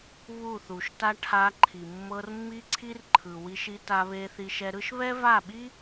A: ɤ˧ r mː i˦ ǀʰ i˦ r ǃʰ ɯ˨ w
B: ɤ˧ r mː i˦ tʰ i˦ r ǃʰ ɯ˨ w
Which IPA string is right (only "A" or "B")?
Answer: A